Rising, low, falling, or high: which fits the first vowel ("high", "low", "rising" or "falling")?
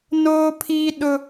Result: high